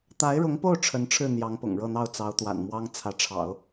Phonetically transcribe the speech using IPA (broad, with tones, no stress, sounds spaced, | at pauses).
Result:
t̪ a˧˥ ɪ̯ ɻ ʊ˧˥ ŋ p o˥˩ ʊ̯ ʈ͡ʂʰ ə˧˥ n ʈ͡ʂʰ ɻ̩˥˩ n̪ j ɑ˧˥ ŋ p ʊ̰˨˩ ŋ ɻ ɤ˥˧ n̪ ɑ˥˩ ʊ̯ t͡s ɑ˧˥ ʊ̯ t̪ w a̰˨˩ n m w ɑ˥ ŋ t͡sʰ ä˧˥ ʈ͡ʂʰ ɑ̰˨˩˦ ʊ̯